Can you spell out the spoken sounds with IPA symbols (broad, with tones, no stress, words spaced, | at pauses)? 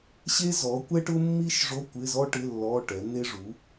ɕe˥zɔ˨˥kʷɛ˥ʈʊ˥ mːi˥ʃʐo˧˥˧ kʷɪ˧˥˧zɔ˥ʈɪ˧˥˧ lːɔ˧˥˧ʈɛ˨˥n̪e˥ ʐu˨˥